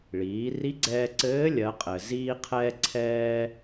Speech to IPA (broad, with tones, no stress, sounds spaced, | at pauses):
ɭ iː˩˧ r i˧˥ ɡ͡ǀ ɛː˧ ǀ ɘː˧˥ lʲ ɜ˩˧ qʼ ɘ˩ z iː˧ qʰ ɛː˧ ǀʰ ɛː˧